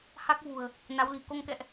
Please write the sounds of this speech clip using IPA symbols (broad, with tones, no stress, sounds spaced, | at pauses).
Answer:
h a˦˥ k̚ v ṳ˨˩ ə̯ | n a˨˦ w l i̤˨˩ k o˧ ŋ k ɛ̰˧˨ ʔ